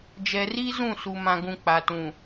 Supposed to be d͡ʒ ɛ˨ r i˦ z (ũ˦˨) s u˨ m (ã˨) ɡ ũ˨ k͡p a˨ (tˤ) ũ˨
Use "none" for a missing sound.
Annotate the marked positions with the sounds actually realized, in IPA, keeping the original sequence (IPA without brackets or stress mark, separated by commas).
ũ˦˨, ã˨, t